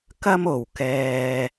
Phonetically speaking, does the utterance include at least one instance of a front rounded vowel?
no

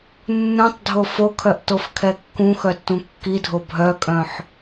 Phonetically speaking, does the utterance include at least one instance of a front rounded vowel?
yes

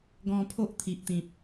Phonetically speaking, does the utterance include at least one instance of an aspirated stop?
yes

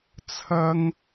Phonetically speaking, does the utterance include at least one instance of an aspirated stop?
yes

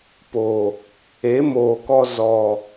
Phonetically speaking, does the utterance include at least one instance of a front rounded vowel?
no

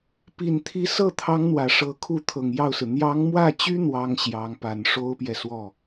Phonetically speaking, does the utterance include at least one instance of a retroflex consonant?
yes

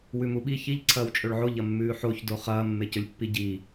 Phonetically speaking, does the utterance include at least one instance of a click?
yes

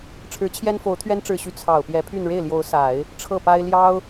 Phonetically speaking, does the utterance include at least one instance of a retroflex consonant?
yes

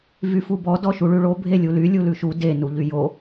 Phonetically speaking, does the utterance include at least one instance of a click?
no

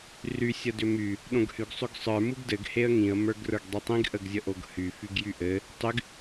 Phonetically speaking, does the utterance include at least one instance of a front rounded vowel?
yes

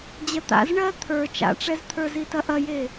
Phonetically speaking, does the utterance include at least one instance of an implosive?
no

